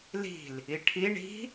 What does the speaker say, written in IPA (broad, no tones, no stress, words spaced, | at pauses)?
li̤l | iʈʰi ɳi̤